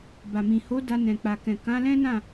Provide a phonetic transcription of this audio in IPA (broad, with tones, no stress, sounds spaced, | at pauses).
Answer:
b a˨ m ĩ˨ h o˨˦ d a˧ n ɛ̃˨ k͡p a˨ k ɛ̃˨ k ã˨˦ l ɛ̃˦ n ã˦˨